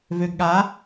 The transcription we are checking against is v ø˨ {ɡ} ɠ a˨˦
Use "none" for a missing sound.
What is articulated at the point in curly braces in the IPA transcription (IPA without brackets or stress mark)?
ɡ